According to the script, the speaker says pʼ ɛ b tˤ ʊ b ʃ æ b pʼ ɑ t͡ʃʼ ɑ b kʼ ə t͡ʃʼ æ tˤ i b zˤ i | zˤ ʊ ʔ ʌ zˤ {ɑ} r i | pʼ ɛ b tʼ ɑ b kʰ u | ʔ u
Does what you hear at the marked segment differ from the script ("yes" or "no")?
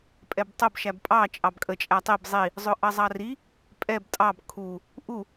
no